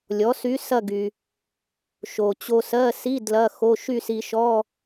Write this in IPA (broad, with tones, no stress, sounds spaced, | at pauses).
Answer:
lʲ ɔ˩˥ s y˧˥ s ɐ˥˧ ɡ y˩ | ʃ o˩ t͡ɕ o˧ s ɜ˧˥˧ s i˧˥˧ d l ɐ˧˥˧ x o˧˥˧ ʃ y˥˧ s i˧ ʃ ɔ˧˥˧